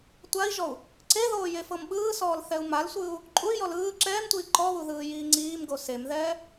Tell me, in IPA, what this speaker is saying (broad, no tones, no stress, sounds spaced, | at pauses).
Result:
tʷ a i̯ ʒ ɔ u̯ | ǀ e ð oː j e f ɤ m ɓ ɯː s ɔː l θ ɛ u̯ m a l sʷ ɯː u̯ | ǃʼ u y̯ j ɔ l ɯː ǁ ɛː m tʷ iː ǃ ɔ β u ð ɯː j iː ŋ͡ǀ iː m ɡ o s e m ð ɛː